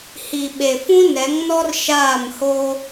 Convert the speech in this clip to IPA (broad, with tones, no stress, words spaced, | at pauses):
hi˨ ɓe˨fũ˦nɛ˨˦ŋnɔ˦r ʃaː˦˨mho˦